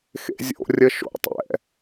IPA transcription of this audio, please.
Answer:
x ḛ zʲ o̰ rʲ ə ʃ o̰ tˤ ɛ̰

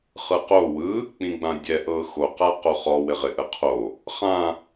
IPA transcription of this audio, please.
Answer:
χ ɯ q o w ɯ | k͡p ĩ ɡ͡b ã dʲ ɛ ʔ ɤ x o q a q o χ ɔ w ɪ ʁ ɪ ʔ ə qʰ o | χ ã

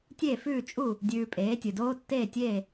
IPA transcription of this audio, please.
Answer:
tʲ e˥˩ f ʉː˥˩ t͡ʃʼ u˥˩ | dʲ ʉː˧ pʼ eː˩˥ tʲ ɨ˩ d oː˥ tː eː˥˩ tʲ eː˥˩

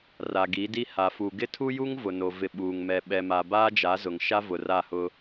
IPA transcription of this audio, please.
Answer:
r a˨ ɡ i˨˦ d i˦ h a˨ f u˨ ɡ ɪ˦ tʰ u˦ j u˦ ŋ v ʊ˨ n o˨ v ɪ˨ ɓ uː˨ ŋ m ɛ˨ ɓ ɛ˨ m a˨ b aː˦ d͡ʒ a˨˦ z ʊ˨ ŋ ʃ a˦ v ʊ˨ r a˦˨ h ʊ˦

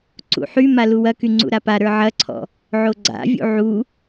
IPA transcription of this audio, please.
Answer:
ǀ ṵ ħ y m a l u w ɐ k y ŋ͡ǀ ṵ ɾ a p a ɾ ə˞ ʕ ɐ ǀʰ ɔ̰ | ʕ o ɡ͡ǀ a̰ vʲ ṵ ʕ u

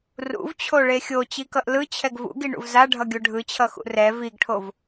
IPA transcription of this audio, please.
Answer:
r ṵ v t͡ɕʰ o ɭ e xʲ o t͡ɕ i k ʌ ʔ l ɯ t͡ɕʰ ɛ ɡ v ṵ ɡ i ɳ ṵ v z a ɖʱ ʌ ɡʲ o ɖʱ ɯ t͡ɕʰ ʌ x ṵ r ɛ v i ɡ ʈʰ o v

